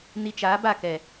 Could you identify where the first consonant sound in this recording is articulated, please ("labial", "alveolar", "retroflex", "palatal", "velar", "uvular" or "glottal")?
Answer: alveolar